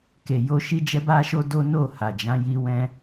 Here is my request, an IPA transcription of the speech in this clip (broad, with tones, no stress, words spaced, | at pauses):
ke˨jo˧ ʃi˦d͡ʒɛ˦ba˦ʃo˦ do˦no˦˨ha˨d͡ʒã˨˦ ji˧wɛ̃˧